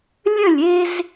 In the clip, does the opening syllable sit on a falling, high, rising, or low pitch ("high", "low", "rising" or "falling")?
falling